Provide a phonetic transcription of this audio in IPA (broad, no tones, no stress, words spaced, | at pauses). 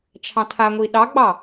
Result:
t͡ʃʰɑ̃tʰaŋʷi ɗɑɡ͡bɑ